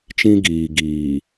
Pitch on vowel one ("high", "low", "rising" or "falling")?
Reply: high